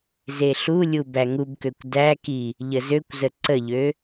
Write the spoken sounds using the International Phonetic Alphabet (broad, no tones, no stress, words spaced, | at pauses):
zeɬulʲu bæŋubkøkʷ dæki | ʎəzøkʷzə ǀəʎø